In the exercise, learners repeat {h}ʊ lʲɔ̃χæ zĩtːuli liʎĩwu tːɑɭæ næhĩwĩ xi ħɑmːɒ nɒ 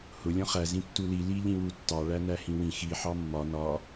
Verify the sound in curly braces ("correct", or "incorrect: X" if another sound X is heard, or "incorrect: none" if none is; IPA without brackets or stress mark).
correct